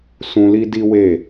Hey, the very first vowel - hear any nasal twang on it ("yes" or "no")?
yes